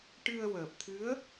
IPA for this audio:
ʈɨ˧ə̯wəː˨˩p̚t̪ʰɨ˧˥ə̯

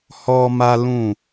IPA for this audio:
hɔ˦ma˦ lũ˦˨

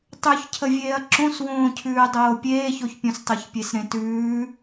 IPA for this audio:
tˤʉçcʰəvʲeːɐ̯ ǁõswõːcʰʉː dˤoːpʲeːçoçpʲõs tˤoçpʲesɾẽtʉː

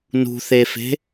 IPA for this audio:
nṳθefe̤

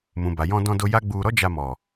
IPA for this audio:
mũ˨ba˨ jɔ̃˧dɔ̃˧do˧ ja˦ɡ͡bu˧ ɾɔ˦d͡ʒa˧mɔ˨

